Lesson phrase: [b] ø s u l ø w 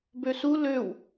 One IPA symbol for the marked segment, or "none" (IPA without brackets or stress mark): b